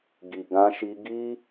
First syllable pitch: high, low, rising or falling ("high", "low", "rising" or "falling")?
low